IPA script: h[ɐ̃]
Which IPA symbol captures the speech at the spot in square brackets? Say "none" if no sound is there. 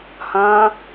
ɐ̃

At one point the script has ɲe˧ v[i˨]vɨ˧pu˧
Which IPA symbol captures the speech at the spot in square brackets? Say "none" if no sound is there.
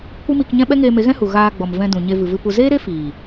ɨ˨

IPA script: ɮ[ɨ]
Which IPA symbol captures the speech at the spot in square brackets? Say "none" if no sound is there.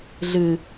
ɨ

